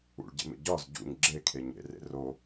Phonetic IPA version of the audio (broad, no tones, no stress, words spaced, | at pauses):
ṵɭɟḛmḛ ɟɒz ɟṵɲ ɡ͡ǁekʰe ɲḛrḛ ro